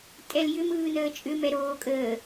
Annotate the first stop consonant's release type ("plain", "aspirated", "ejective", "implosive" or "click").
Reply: ejective